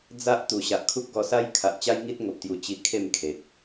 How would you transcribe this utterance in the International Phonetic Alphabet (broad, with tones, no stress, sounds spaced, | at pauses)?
d͡z a˦ ʔ t̪ u˨˩ ɕ a˨ ʔ kʰ u˦ k̚ ɡ ɔ˧ s a˦ j kʰ a˨ ʔ t͡ɕ a˦ j ŋ i˦ t̚ ŋ o˨ p̚ t̪ j u˨˩ t͡ɕ i˧ kʰ e˥˧ m kʰ e˨ k̚